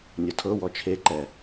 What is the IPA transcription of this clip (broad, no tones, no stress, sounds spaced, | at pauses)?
nʲ ɔ tʰ ɤ w ɔ t͡ʃʰ e ǃ ɛ